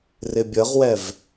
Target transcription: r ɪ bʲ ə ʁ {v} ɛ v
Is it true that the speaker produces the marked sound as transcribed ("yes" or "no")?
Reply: no